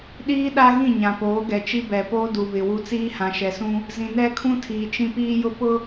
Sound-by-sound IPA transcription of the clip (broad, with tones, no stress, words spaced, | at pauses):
ɗiː˦ ɗa˦ɣĩ˦˨ ɲã˨poː˨˦ɡɛ˨t͡ʃi˦ bɛ˨poː˦ du˨βɪ˨wu˦ t͡siː˦hã˨ʃɛ˨sũ˦ | zĩ˨nɛ˦kʰũ˦tʰiː˨ t͡ʃĩ˦piː˦jʊ˦pʊ˦